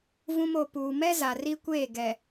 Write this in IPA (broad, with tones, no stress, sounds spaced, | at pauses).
v ũ˦ m o˨ p uː˨ m ɛ˦ z a˨ r i˦ kʷ eː˦˨ ɡ ɛ˨